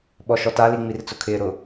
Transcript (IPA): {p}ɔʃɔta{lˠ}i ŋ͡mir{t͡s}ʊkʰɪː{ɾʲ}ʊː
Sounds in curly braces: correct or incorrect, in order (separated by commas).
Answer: incorrect, incorrect, correct, incorrect